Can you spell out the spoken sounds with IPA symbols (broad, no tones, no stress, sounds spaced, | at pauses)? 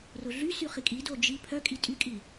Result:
r ʊ ɮ y s y χ i kʼ i d o d͡ʒ i pʰ œ kʼ i tʼ y kʼ i